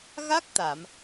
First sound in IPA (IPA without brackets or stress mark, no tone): ɣ